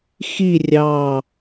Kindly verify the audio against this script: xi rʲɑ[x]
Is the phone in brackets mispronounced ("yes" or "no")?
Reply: yes